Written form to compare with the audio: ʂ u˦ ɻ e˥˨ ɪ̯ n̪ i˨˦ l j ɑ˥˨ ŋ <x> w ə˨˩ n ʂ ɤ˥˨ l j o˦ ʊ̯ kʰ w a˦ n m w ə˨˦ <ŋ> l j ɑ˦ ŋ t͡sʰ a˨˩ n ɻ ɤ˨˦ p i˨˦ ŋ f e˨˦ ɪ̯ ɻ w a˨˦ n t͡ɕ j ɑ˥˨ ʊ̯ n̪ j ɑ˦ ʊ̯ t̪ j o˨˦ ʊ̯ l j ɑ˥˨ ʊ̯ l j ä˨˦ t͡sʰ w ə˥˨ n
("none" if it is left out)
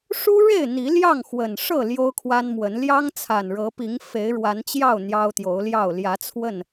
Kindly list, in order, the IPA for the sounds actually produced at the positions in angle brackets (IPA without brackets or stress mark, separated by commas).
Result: x, n